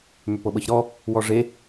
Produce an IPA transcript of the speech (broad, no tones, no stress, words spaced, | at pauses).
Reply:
mʏpɤɓɤçɾɔ | wɔʐe